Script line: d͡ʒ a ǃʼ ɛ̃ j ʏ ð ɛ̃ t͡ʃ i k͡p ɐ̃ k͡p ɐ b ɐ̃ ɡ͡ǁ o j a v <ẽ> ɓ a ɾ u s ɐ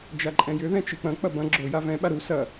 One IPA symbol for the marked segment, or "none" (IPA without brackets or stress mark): ɛ̃